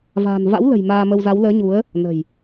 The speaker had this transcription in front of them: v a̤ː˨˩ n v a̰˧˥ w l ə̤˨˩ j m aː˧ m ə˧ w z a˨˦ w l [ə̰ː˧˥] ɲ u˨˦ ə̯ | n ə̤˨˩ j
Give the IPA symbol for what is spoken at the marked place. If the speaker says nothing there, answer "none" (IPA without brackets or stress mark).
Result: əː˨˦